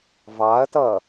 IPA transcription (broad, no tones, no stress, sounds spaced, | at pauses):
v ɑ ɐ̯ t ʌ